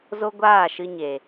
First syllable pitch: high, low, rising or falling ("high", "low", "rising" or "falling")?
high